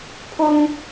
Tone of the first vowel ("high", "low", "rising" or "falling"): high